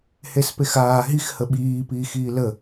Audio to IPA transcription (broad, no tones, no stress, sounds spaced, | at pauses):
h e s p e x aː ɦ i x h ə ɓ iː p iː x iː l ə